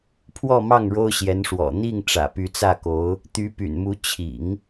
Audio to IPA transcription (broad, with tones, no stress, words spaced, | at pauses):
pʰwɔ˥˧mɑ˥˩ŋ ɻo˥ʊ̯ɕjɛ˧˥nʂwɔ̰˨˩ n̪i˥˩ŋ ʈ͡ʂä̰˨˩py˧˥t͡sä˥˩ko˧˥ʊ̯ | t̪y˧˥py̰˨˩nmu˧˥ t͡ɕʰḭ˨˩˦ŋ